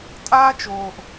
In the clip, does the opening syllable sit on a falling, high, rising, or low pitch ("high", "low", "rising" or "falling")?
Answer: high